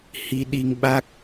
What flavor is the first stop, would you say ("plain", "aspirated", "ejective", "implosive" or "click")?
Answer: implosive